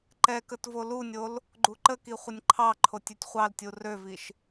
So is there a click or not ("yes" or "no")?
yes